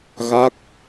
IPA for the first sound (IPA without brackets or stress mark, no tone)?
ɣ